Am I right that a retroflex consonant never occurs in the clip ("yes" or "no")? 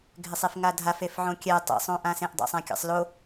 yes